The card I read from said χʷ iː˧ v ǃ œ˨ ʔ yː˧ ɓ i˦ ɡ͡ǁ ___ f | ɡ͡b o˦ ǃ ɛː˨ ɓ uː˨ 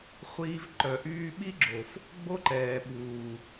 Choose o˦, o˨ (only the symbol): o˨